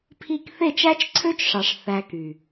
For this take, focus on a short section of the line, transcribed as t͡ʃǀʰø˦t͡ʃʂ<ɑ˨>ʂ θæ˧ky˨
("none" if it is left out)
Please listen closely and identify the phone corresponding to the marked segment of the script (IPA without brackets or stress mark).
ɑ˨